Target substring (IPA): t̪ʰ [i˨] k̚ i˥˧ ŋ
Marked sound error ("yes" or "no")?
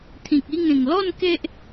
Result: yes